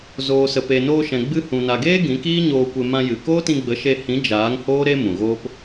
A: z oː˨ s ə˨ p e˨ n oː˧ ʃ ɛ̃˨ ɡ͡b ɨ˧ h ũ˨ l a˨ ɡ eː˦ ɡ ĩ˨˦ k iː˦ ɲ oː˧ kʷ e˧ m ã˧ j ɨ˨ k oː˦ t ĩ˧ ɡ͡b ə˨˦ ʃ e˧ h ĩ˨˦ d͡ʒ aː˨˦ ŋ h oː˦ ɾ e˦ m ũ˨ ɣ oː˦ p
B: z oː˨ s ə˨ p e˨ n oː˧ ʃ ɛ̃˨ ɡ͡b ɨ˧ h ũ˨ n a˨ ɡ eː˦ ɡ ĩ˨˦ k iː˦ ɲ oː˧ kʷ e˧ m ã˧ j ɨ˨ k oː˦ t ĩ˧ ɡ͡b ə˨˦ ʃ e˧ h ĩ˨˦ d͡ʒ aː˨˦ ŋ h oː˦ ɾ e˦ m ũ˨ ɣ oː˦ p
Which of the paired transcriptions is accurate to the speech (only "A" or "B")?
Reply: B